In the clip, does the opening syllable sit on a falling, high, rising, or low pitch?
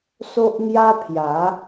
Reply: high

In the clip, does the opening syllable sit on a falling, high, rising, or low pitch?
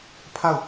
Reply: falling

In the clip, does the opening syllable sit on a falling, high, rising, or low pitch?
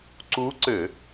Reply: rising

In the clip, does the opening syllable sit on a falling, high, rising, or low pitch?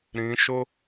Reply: rising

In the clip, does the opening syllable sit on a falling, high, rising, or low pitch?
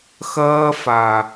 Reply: high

